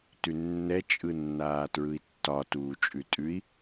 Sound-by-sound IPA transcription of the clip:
t ʉ nː ɛ t͡ʃʼ ɯ nː aː t ɹ ɯ i̯ tː ɒ t uː t͡ʃʼ ʉ tʼ ʉ i̯

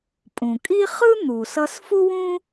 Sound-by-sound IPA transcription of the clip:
pʼ ũ˩ kʼ i˥ χ ɯ˥ n̪ u˩ s ʌ˧ s f u˥ w ũ˥

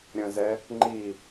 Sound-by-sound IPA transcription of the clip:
ɾʲ ə̃ z ɛ | ŋ͡ǃ i

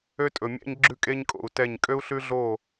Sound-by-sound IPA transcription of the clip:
ø˦ tʼ ɵ˨ mʲ æ̰˦ ɲ ɡ͡ǁ ʉ˦ kʼ e˦ ɲ kʼ o̰˨ u̯ t ɛ˦˨ ɲ kʼ ø˦ u̯ ɬ ʉ˦ ɮ o˦˨

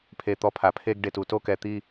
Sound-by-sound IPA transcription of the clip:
pʰ e˦˨ t̪ ɔ˦ pʰ a˧ pʰ e˦ ɡ ɖ e˧ t u˨ t o˦ k ɛ˧ t̪ i˦

